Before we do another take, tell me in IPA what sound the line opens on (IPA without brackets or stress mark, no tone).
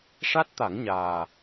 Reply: ʂ